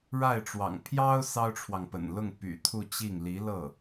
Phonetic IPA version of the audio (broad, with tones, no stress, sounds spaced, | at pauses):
ɻ a˥˩ ɪ̯ ʈ͡ʂ w ɑ̰˨˩ ŋ pʰ j ɑ˥ ʊ̯ s ɑ˥ ʊ̯ ʈ͡ʂʰ w ɑ˨ ŋ p ə̰˨˩ n l ʊ˥˩ ŋ p y̰˨˩ t̪ʰ u˥˧ t͡ɕ i˥˩ ŋ l i˧˥ l ɤ˥˩